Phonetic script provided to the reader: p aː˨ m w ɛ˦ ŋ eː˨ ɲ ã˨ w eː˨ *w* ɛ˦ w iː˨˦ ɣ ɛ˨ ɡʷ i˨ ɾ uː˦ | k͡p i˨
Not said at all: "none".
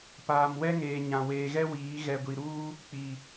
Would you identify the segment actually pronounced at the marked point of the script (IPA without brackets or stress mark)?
ɣ